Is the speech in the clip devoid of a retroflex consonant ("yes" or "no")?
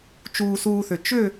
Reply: yes